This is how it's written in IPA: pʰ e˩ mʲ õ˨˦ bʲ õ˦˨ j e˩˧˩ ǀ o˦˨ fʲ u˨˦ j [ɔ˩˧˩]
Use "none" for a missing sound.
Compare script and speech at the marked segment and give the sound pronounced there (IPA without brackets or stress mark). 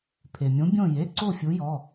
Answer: ɔ˩˧˩